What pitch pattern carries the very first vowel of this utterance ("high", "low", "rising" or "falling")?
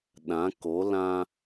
rising